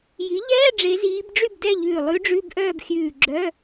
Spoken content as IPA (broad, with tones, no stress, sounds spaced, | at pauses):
j i˩˥ ʎ ɛː˧˥˧ ɖ͡ʐ e˧˥ z iː˧˥ b ɖ͡ʐ y˥˨ b d ɛ˥˨ ʎ ʉː˧˩ lˠ ʉ˧˥ ɖ͡ʐ ʉ˧˥˧ b ʔ œː˥˨ b xʲ ʉː˧˩ ɡ͡ǁ œ˧˥˧